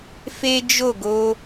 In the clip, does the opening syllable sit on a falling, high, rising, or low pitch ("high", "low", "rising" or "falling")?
high